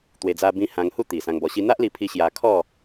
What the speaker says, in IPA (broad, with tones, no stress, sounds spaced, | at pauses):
t̪ w e˧ d͡z a˦ b ĩ˦ h ã˧ ŋ h u˥˧ t̪ i˨˩ s ã˧ ŋ b ɔ˧ ɕ i˦ n̪ a˦ ʔ l i˧ pʰ i˧ ɕ j a˧ kʰ ɔ˥˧